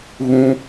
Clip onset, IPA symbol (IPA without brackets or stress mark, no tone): ɣ